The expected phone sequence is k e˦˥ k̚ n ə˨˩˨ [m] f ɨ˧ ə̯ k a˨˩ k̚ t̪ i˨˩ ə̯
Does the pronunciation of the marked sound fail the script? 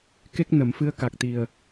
no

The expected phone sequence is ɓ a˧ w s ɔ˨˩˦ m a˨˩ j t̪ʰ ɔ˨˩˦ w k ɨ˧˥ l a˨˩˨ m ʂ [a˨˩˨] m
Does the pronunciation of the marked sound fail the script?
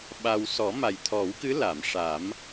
yes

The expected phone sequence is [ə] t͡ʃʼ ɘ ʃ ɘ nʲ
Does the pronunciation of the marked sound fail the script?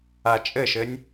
yes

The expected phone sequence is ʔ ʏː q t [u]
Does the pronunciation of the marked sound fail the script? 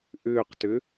yes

